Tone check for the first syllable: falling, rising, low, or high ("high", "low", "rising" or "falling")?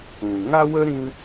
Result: low